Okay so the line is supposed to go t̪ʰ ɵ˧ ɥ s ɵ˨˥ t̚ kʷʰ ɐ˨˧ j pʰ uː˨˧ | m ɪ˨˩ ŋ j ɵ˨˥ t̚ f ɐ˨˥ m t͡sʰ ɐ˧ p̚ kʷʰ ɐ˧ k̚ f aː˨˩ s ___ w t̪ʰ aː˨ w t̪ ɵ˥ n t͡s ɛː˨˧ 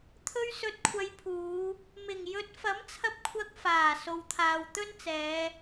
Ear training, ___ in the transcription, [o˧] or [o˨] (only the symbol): o˨